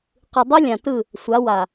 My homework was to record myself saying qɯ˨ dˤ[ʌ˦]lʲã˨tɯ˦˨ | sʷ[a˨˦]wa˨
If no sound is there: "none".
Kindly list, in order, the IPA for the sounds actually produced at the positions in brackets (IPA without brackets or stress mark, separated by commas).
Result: ʌ˦, a˨˦